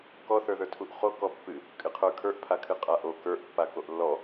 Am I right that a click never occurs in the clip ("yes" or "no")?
yes